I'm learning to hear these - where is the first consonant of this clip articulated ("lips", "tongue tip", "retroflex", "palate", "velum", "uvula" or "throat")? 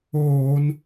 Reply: tongue tip